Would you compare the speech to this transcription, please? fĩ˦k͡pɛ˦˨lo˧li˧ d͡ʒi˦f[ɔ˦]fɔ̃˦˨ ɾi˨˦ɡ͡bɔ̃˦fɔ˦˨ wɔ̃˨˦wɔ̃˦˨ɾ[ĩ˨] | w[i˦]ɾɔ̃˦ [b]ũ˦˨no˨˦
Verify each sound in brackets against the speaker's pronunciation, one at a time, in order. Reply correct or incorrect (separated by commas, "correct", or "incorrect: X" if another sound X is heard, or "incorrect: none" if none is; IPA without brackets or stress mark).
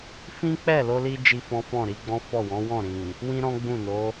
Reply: incorrect: ɔ̃˦, correct, incorrect: ĩ˦, incorrect: ɡ͡b